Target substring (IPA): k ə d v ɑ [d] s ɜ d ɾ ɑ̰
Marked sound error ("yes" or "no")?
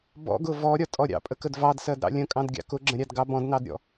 no